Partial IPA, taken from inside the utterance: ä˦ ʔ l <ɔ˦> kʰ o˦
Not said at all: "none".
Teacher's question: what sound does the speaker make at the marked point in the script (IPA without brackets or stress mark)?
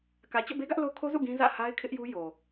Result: o˦